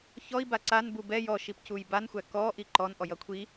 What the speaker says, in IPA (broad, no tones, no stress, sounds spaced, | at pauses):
ç ɔ i̯ b a ǀ a n b u b ɛ j ɔ ʃ i p c u j b a n xʷ æ k ɔ ʔ i ǃ ɔ n ʔ ɔ j ʌ kʷʰ i